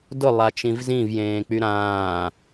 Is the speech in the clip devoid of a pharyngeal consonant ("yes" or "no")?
yes